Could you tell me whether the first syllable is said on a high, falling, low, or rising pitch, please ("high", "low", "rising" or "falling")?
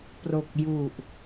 low